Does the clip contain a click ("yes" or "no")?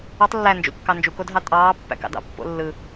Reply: no